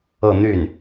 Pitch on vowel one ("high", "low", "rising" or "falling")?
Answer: falling